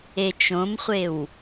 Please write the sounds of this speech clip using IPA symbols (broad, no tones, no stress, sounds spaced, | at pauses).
e t͡ʃ õ m χʷ e w